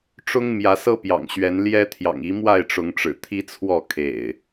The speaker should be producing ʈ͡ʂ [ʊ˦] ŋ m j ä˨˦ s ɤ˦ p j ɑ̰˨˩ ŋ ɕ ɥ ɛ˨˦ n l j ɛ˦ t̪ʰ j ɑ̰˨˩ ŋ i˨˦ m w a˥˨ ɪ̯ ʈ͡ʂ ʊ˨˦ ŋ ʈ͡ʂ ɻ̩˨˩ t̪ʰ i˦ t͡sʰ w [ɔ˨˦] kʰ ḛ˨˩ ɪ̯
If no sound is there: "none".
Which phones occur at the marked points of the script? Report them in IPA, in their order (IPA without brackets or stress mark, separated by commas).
ʊ˦, ɔ˥˨